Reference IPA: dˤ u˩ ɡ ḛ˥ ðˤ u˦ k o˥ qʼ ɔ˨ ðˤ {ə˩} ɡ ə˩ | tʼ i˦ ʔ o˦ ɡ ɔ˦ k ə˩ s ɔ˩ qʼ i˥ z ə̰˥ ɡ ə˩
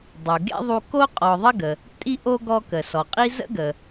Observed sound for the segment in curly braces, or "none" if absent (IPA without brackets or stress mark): ə˥